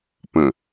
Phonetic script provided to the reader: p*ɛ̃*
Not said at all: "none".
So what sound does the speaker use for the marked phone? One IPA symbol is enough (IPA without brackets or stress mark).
ə̃